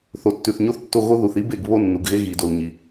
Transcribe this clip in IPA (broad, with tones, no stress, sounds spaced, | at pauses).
θ o˨ tː ʉ˨ θ ɲ o˦ θ tː o˦˨ ɣ o˦ ð u˨ θ i˦ b e˦˨ ɡ β o˦ nː u˨ ɡ ɣ e˦ ɣ i˨ d o˨ l ɲ i˨